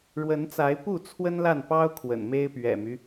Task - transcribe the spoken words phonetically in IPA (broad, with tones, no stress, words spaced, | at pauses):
ɻwə˨˦nt͡sa˨˦ɪ̯pu˥˨ t͡sʰwə˦nla˥˨npɑ˦ʊ̯ kʰwə̰˨˩nme˦ɪ̯pɥɛ̰˨˩my˦